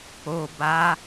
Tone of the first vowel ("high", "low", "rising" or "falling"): low